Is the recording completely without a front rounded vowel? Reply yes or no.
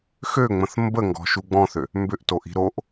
no